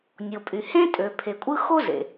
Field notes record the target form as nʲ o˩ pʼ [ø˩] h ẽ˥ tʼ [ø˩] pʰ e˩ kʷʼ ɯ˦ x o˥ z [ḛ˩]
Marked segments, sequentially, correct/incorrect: incorrect: y˩, correct, correct

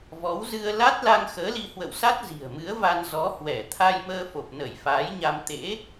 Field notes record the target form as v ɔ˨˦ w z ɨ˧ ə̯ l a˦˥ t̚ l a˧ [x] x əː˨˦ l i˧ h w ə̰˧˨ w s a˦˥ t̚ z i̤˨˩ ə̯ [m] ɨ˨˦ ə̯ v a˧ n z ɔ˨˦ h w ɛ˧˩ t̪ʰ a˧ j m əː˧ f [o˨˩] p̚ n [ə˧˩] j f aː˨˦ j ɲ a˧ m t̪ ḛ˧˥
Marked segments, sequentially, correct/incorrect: incorrect: ŋ, correct, correct, correct

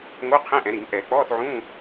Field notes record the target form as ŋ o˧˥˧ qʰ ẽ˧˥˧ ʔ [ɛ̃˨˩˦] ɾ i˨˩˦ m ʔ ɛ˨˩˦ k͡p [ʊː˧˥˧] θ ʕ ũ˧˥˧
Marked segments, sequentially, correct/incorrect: correct, incorrect: ɔː˧˥˧

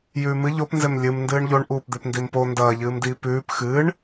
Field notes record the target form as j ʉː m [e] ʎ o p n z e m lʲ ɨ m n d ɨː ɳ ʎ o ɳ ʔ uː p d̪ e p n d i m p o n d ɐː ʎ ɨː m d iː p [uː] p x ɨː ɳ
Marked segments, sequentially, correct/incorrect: incorrect: ɨ, incorrect: ʉː

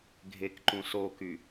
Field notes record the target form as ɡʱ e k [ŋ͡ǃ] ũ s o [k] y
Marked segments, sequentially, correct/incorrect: incorrect: ǃ, correct

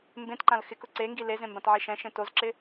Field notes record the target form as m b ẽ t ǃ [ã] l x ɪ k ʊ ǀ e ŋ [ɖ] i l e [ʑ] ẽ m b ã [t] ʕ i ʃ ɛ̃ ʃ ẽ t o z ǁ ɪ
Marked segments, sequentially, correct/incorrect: correct, incorrect: ɡ, incorrect: z, correct

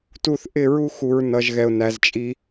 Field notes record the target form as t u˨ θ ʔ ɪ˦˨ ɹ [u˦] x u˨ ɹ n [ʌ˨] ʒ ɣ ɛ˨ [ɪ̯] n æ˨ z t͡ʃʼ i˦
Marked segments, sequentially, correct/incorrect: correct, correct, incorrect: ʊ̯

